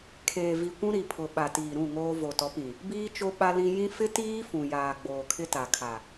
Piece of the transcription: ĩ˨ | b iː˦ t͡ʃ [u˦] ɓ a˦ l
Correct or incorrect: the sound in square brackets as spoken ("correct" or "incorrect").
incorrect